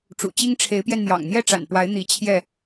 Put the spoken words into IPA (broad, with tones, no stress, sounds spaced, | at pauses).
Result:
ʈ͡ʂ ṵ˨˩ t͡ɕ i˦ ŋ ʈ͡ʂʰ e˨˦ ɪ̯ p j ɛ˧ n n̪ j ɑ̰˨˩ ŋ n̪ j ɛ˥˨ ʈ͡ʂ a̰˨˩ n p w a˨˦ ɪ̯ n̪ i˨˦ t͡ɕʰ j ɛ˥˨